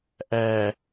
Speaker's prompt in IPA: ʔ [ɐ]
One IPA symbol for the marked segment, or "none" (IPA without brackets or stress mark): æ